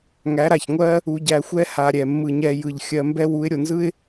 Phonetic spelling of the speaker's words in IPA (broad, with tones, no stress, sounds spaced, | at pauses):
ŋ æ˨˦ ɾ a˨ ç ŋʷ ɜ˦ | u˧ ɟ æ˧ xʷ ɛ˦ h a˧ ɾʲ ɛ˨ mː ɯ˨ ɲ ɛ˧ j ɯ˨ ʎ xʲ ɜ˧ m b ɛ˦ w u˨˦ ɪ̯ ɾʲ o˨ n z ɯ˦ ɪ̯